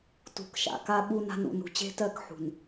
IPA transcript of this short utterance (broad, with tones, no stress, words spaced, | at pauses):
tṳ˨kʃa̰˨ ka˦ɓu˦na̤˦nṵ˨ nṳ˨t͡ɕe̤˦tɜ˦˨k ħṳ˨n